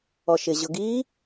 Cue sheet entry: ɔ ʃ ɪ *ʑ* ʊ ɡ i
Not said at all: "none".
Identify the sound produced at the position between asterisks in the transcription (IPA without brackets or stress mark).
ʑ